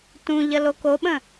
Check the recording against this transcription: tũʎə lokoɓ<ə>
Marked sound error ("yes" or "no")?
yes